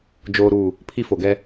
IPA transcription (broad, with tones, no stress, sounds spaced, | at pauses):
d͡ʒ oː˦ ɾ uː˦˨ | pʰ i˦ f o˨ ɡ ɛ˦